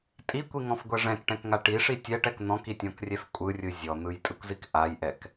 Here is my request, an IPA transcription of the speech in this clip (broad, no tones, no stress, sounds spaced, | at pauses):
tʼ i kʷ i ŋ ɔ̃ f ɡʷ ɛ ʐ ɛ̃ k ʈ ɛ̃ k ŋ a ʈ i ʂ i tʲ ɛ ʈ ɛ k n̪ ɔ̃ k i tʲ ɔ̃ k rʲ ɛ f kʷʼ ɯ rʲ ɯ zʲ ɔ n̪ ɯ j tʼ ɯ kʷ z i k ʔ a j ʔ ɛ k